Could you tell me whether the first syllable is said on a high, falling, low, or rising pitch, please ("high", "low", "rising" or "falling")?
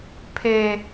high